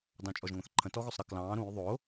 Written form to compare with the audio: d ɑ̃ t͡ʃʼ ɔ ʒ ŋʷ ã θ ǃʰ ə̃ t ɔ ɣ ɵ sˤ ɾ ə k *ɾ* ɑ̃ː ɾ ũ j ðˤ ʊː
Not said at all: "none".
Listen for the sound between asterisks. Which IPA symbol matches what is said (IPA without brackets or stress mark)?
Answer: l